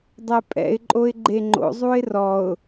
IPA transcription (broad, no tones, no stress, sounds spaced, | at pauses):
dˤ ɛ pʼ ɛ̰ ɪ̯ ǃʼ o ɪ̯ ɡ͡ǃ e ŋ͡ǃ o̰ zˤ u ɪ̯ r ɔ ʊ̯